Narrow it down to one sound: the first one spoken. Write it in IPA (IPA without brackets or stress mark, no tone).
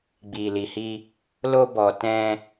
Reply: ɡ͡b